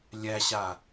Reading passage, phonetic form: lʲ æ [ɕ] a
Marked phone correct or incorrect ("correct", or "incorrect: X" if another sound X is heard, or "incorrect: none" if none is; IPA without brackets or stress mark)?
correct